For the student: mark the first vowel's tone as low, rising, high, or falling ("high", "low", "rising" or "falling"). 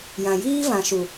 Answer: low